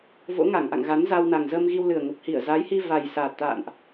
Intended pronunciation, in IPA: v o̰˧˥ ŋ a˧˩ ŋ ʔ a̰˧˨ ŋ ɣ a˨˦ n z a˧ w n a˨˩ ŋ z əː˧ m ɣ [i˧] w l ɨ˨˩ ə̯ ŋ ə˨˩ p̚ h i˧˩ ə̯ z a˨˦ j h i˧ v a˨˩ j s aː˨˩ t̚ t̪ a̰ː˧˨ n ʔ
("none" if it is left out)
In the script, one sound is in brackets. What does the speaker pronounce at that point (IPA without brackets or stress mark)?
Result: i˧